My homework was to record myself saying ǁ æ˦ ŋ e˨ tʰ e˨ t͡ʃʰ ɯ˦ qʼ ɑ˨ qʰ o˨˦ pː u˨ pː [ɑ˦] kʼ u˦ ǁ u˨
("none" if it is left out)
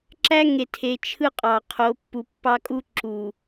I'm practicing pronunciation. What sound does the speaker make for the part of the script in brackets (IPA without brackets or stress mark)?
ɑ˦